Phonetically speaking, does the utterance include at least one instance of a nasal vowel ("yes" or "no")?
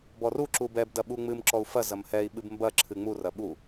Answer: no